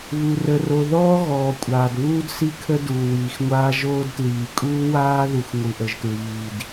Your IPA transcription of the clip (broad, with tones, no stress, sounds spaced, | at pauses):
β u˨ r ə˨ r o˨ ð ɔː˦ ɣ ɔː˨ kʷʼ aː˨ d β uː˦ d s i˦ kʰ ə˦ d uː˨ w iː˨ x ŋʷ aː˦ ʒ oː˦ d t l iː˨ kʼ uː˦ w aː˦ ð u˨ x ŋʷ ɯ˨ ʔ ə˨ ʒ t ɹ iː˨ d